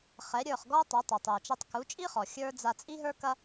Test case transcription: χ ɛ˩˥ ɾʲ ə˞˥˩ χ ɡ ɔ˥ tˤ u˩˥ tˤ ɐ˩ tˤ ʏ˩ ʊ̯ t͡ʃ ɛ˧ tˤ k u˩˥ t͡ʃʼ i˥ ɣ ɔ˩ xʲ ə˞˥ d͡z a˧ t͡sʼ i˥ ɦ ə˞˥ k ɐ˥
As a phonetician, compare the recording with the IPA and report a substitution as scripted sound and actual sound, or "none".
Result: ɣ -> χ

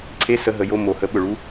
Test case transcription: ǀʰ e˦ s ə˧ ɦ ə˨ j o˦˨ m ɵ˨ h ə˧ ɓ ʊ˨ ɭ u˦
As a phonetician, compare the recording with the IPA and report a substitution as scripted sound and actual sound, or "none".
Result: ɵ˨ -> o˨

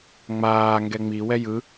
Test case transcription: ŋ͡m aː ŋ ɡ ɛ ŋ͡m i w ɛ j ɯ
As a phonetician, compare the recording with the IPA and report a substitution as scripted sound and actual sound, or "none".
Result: none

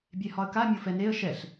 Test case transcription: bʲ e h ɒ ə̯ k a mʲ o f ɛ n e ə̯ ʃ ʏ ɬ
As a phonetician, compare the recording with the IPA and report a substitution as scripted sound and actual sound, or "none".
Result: ʏ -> ɛ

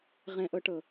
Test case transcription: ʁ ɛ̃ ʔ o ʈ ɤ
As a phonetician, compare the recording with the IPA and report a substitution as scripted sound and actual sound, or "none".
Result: o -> ɤ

